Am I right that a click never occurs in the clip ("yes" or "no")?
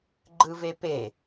no